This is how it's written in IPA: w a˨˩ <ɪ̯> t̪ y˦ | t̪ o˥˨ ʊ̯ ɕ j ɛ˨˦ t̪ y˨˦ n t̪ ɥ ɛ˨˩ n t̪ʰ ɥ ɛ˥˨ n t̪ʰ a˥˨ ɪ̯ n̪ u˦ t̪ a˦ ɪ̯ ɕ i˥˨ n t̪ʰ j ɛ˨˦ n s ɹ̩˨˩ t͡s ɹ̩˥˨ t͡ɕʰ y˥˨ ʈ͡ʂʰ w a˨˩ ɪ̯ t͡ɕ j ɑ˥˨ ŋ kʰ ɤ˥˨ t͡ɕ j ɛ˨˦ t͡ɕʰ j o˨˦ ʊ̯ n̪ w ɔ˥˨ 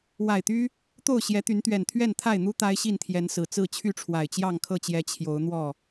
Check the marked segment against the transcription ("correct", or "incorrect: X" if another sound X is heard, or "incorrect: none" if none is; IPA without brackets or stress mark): correct